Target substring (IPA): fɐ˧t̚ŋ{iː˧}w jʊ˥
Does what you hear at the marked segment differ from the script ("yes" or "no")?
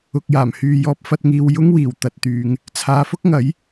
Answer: yes